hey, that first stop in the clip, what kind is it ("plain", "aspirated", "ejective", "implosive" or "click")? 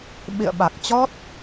implosive